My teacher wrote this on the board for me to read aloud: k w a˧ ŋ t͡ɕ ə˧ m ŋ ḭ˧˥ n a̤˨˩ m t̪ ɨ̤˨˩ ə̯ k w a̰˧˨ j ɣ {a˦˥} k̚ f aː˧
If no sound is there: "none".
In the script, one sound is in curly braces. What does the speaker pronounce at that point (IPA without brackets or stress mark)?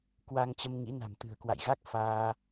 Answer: a˦˥